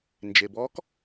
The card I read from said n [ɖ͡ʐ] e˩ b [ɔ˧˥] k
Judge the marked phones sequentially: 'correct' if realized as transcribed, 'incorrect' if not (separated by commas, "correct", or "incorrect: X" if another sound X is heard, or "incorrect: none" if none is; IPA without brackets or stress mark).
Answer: incorrect: d͡ʒ, correct